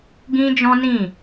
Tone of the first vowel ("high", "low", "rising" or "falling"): high